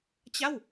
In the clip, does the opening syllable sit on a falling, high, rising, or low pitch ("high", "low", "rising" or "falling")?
falling